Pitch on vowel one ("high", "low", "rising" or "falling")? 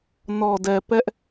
low